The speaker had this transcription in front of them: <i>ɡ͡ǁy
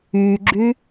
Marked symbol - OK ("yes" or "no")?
no